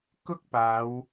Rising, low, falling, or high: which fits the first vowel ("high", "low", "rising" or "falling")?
high